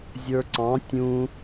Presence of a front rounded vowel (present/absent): absent